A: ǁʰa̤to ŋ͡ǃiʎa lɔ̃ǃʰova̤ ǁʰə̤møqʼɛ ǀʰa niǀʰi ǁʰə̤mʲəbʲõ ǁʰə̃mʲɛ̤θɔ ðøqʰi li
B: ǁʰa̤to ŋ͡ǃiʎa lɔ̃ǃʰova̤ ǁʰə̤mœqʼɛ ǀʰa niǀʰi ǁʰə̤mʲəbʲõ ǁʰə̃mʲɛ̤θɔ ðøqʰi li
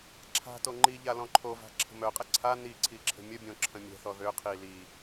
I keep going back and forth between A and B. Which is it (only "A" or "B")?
B